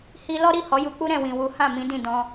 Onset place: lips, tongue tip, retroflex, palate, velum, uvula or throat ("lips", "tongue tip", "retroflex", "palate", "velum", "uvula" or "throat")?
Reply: throat